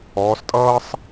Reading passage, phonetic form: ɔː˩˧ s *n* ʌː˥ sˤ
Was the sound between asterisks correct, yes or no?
no